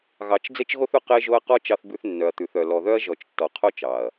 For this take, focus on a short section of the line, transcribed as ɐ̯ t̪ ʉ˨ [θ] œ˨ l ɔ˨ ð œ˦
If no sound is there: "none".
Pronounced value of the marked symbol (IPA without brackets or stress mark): θ